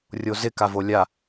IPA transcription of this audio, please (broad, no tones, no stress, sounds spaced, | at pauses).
rʲ o z ɪ k a v o lʲ a